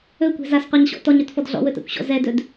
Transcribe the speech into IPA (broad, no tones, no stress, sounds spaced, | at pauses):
ɵ kʷ ɛ̤ z a s qʷ a ɲ ɕ ɔ̰ t ɔ ɲ ɵ t f ɔ d ɮ ɔ̰ w ɵ t a̰ kʷ ɕ ɔ̰ z ɛ d ɵ d